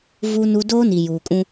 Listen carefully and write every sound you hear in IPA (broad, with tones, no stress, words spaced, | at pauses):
vu˦nu˦ doː˦ni˨juː˨kʼũ˦